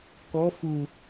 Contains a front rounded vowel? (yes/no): no